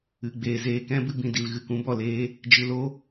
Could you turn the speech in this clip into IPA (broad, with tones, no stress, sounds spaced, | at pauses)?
ɨ˨ ɡ͡b eː˨ z eː˧ k ɛ̃˦ b ɨ˧ b ĩ˨ d i˨ l ɣ ɨ˨ k ũ˦ b ɔ˨ l eː˦ | d͡ʒ ɨ˨ l o˧